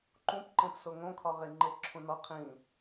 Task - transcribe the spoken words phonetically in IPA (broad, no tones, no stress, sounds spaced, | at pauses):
ǃ ũ p ǃ ẽ p s o ŋ õ kʰ ɒ ʁ e ŋ͡ǃ e ǁʰ ũ n ɒ qʰ ĩ